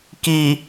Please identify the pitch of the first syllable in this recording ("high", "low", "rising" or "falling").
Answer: low